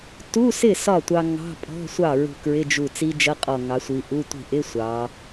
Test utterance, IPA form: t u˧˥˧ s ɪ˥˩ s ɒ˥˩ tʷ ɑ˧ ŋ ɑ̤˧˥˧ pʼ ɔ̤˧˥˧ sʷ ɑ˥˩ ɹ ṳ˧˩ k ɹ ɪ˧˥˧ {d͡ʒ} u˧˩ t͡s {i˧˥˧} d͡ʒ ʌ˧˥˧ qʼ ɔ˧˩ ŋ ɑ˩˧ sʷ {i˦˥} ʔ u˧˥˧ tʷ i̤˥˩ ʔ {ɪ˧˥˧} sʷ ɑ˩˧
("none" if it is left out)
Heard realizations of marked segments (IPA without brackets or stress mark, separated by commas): d͡ʒ, i˦˥, i˩˧, ɪ˧˥˧